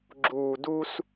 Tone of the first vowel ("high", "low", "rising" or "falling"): low